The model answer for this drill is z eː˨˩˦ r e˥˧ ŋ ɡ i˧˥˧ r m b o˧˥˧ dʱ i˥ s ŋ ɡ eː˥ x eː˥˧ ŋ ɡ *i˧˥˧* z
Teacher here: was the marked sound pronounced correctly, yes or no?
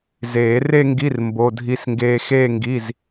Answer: yes